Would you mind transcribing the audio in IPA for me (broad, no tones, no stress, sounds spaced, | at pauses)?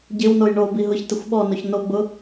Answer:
ɟ ɪ w n o j ɳ o b i ɦ ʊ ç t ɪ xʷ ɓ ɔ n o ç n o ɡ͡b ʊ